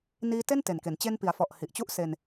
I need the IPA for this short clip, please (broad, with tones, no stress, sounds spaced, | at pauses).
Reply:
n iː˧ t e˥˩ n t e˨˩ n k e˩˦ n t͡ɕ e˧ n p i˩˦ a̯ f ɔ˨˩ ʔ h i˨˩ ʔ t͡ɕ u˥˩ ʔ s e˧ n